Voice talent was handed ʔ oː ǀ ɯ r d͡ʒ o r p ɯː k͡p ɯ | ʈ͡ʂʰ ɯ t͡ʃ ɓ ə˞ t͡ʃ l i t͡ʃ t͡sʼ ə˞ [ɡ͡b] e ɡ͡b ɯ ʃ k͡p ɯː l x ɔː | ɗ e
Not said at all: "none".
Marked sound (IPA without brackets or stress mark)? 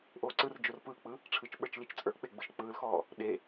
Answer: k͡p